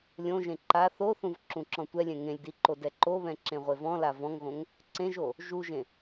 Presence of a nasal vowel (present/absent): present